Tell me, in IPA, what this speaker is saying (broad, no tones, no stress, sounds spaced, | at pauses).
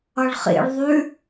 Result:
ʌ ɭ χ ḭ ɭ ðˤ ʉ